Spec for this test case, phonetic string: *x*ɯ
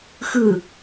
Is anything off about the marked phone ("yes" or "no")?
no